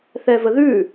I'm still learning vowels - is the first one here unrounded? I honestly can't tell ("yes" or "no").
yes